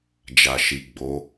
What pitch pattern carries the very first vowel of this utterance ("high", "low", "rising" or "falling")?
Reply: low